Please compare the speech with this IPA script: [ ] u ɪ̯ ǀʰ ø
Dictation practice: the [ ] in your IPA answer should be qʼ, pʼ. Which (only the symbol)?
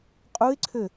qʼ